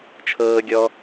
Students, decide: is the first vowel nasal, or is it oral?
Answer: oral